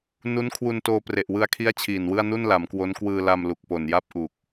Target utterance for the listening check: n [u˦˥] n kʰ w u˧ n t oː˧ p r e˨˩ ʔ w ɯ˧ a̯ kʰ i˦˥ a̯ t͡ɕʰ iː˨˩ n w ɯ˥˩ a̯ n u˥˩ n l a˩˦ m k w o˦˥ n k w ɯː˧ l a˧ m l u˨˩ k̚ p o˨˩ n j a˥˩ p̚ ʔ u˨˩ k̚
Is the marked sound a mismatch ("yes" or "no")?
no